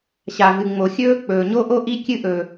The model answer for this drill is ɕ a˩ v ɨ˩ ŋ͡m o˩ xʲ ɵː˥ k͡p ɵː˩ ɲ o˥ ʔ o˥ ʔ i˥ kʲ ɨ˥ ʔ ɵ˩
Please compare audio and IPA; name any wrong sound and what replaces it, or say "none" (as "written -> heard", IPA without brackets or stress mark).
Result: none